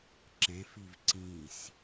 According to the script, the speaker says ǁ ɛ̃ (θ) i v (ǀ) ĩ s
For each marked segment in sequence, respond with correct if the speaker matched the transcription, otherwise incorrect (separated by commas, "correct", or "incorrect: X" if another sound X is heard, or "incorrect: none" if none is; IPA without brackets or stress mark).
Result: incorrect: f, correct